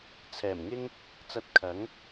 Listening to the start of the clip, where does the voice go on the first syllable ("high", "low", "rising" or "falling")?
low